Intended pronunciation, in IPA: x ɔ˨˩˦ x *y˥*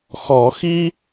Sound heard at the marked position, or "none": i˥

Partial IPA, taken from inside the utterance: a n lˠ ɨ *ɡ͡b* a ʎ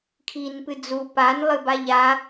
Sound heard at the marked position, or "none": b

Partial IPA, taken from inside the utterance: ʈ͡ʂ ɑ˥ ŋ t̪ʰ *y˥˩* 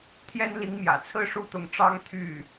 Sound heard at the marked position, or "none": y˥˩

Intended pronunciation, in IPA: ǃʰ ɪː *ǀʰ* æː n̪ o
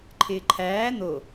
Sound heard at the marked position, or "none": ǃʰ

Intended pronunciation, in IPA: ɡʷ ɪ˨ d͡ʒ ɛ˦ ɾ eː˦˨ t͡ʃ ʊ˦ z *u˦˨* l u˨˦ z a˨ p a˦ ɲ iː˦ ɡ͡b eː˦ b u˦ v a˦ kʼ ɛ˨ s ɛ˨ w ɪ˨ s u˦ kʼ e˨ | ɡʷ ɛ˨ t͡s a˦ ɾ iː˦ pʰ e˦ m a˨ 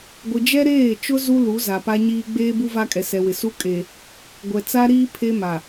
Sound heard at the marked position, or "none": u˦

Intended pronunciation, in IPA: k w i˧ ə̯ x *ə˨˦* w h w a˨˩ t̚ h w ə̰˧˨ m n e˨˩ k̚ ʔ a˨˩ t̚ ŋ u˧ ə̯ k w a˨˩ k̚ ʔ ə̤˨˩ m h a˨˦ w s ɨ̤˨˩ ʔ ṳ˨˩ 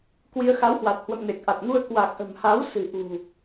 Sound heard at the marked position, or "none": a˨˦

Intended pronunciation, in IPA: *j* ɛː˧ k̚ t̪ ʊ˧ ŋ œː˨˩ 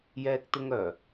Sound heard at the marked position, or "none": j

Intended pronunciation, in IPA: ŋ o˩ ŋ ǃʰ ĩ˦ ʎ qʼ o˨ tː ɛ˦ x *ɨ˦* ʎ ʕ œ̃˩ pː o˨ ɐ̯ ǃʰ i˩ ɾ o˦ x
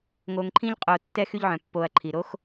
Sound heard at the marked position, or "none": y˦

